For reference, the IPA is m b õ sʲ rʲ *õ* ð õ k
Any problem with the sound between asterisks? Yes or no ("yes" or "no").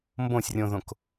no